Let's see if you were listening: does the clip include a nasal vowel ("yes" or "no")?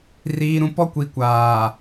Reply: yes